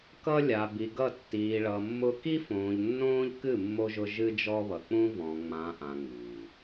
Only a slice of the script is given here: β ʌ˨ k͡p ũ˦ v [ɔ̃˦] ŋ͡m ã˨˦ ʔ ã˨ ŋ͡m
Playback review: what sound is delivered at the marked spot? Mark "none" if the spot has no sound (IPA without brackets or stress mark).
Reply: ɔ̃˨